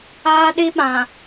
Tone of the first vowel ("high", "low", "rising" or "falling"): high